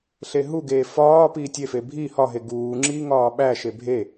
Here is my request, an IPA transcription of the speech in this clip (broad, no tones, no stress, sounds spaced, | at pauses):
ɬ e ɦ u ɡ eː f ɒː p iː tʲ e f e bʱ i h ɒ ɦ e ɡ uː ŋ͡ǁ iː ŋ ɒː ɓ æ ʃ e bʱ e